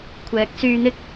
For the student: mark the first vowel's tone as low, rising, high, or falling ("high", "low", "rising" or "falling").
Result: rising